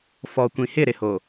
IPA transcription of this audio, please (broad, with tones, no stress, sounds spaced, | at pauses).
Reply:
f ɔ˨ kʷ ĩ˨ h ɪ˦˨ ɾ ɪ˨ h o˨